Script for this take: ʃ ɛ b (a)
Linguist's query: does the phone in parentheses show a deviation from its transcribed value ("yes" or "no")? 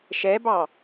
yes